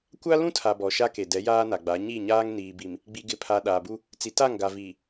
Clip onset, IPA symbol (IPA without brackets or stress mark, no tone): kʷ